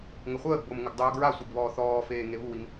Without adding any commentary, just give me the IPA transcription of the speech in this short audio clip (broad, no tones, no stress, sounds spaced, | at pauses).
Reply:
ŋ ə χʷ əː ɡ b o m ŋ ə ɡ dˤ uː ɡ ɹ a sʷ i ɡ β ɔː θ ɔː f eː ŋ e β u w i m